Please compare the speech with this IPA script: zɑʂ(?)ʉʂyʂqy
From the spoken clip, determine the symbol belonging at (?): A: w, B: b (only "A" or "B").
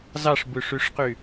B